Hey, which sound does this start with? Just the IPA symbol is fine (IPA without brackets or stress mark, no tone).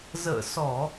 z